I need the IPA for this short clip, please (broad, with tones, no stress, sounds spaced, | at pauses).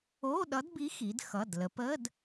o˧˥˧ ɗ ʌ˧˥ d b i˧˥ x i˩˧ d x ʌ˩˧˩ d l ə˩˧ p ə˧˥˧ d